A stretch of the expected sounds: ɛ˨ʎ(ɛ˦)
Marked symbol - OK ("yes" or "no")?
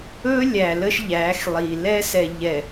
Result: no